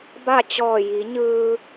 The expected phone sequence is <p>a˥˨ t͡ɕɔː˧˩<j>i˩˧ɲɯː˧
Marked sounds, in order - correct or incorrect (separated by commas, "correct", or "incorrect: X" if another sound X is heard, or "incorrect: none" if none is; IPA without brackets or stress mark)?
incorrect: b, correct